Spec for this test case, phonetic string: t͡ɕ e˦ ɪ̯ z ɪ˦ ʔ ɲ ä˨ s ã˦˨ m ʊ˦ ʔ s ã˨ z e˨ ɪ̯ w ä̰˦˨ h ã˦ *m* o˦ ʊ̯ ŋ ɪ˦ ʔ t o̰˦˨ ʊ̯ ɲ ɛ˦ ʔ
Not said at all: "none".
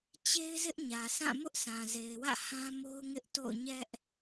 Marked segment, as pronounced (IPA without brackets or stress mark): m